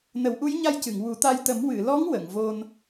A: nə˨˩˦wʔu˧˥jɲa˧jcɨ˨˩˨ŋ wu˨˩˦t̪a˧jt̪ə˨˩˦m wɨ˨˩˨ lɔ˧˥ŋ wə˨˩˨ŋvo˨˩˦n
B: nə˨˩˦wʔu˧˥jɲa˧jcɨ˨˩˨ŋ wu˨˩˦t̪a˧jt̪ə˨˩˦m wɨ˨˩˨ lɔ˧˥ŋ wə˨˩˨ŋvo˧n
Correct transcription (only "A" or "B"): B